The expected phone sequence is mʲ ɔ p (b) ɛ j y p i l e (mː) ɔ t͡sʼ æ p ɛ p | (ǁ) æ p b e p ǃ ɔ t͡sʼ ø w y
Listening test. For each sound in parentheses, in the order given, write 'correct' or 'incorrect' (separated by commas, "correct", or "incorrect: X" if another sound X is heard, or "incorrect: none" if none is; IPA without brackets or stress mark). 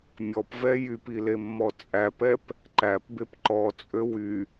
incorrect: v, correct, incorrect: ǃ